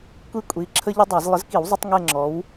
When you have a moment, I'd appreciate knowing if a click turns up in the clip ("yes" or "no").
yes